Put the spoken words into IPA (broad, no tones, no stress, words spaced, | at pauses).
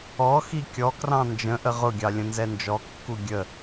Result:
ɔ xikʲɔkrɑ̃ nd͡ʒə̃ ʔəʁʊɡʲɑ lʲə̃nzɛnd͡ʒɔkːu ɡʲə